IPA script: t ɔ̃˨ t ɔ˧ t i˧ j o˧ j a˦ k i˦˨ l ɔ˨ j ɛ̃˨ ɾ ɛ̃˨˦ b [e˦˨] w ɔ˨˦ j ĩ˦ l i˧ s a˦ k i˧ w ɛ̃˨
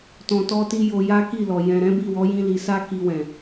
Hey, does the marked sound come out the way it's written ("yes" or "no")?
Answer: no